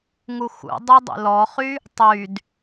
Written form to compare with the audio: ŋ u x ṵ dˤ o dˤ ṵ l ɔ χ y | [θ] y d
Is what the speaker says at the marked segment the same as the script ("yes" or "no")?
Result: no